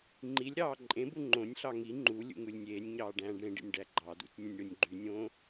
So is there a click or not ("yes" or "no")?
yes